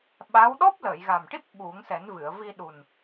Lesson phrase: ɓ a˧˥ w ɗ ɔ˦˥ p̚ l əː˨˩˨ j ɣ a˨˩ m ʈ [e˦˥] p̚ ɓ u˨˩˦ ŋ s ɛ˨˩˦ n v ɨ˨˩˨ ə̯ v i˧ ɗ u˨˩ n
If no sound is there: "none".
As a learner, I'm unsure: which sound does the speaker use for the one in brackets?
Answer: i˦˥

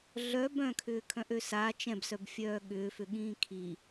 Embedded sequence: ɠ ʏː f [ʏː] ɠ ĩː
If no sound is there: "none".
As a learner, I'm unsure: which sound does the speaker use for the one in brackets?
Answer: ʏ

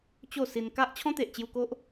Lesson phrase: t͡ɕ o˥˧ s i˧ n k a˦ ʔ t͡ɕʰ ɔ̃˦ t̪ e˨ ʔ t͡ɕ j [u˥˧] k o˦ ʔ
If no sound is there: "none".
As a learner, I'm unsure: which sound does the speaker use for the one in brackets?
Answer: u˧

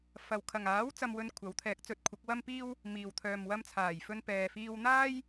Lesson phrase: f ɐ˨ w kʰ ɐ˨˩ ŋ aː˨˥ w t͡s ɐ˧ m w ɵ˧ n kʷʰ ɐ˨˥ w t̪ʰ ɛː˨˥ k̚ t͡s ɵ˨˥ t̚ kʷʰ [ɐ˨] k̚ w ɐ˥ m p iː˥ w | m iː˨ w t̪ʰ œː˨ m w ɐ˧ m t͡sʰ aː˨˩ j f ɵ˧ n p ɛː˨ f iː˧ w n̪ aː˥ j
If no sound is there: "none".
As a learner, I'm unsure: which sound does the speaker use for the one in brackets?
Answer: ɐ˨˥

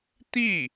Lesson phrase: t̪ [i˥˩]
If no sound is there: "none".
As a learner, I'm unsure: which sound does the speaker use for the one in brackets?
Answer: i˥˩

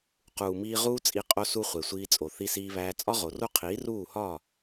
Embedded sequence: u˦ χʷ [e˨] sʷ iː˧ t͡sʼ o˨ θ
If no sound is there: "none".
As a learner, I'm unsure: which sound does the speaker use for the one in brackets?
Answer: e˨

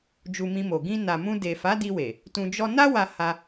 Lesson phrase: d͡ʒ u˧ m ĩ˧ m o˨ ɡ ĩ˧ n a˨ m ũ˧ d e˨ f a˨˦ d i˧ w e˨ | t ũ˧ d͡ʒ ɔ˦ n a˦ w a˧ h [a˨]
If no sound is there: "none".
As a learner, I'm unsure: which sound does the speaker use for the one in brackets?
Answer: a˧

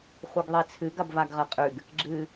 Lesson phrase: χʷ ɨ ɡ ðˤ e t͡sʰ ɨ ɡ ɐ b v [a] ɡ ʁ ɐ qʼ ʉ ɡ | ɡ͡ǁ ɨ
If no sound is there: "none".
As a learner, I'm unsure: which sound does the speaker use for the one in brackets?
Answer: a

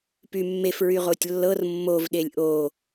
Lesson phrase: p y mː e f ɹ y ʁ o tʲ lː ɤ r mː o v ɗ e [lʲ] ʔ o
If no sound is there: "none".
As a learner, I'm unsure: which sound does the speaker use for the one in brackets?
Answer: lʲ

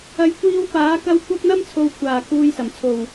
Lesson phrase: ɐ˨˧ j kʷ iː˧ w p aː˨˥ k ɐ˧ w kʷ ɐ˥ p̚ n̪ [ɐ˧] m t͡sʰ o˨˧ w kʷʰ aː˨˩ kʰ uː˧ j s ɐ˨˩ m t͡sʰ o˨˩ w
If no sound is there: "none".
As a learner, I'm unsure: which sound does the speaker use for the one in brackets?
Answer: ɐ˥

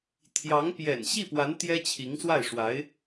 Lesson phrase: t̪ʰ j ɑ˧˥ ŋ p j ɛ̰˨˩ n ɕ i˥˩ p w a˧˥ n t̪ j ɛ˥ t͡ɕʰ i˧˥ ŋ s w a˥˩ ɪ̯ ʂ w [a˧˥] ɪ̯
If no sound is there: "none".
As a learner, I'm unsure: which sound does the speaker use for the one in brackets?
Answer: a˧˥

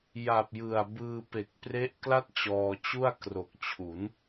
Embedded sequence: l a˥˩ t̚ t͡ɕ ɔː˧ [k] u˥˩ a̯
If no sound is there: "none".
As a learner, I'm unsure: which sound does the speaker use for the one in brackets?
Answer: t͡ɕ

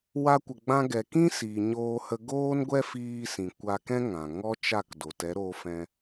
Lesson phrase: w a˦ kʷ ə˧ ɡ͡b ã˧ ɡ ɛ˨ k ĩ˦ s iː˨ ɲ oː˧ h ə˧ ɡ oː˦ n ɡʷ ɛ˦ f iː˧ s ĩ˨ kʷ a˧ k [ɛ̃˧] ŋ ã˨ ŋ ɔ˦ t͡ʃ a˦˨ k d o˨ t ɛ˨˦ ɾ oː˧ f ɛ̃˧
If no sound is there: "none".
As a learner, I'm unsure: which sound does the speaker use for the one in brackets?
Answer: ɛ̃˦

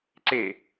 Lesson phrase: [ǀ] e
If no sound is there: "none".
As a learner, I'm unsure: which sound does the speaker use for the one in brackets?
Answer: ǀ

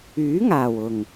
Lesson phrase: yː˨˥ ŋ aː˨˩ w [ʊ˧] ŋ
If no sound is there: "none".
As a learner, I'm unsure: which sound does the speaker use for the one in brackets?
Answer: ʊ˨˩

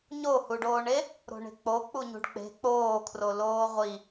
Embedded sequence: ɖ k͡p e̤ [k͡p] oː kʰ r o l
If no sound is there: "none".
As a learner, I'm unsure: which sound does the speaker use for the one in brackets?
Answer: k͡p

